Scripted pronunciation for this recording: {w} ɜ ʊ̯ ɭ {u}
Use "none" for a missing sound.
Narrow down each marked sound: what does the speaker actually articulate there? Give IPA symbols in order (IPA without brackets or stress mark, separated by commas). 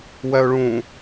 w, ũ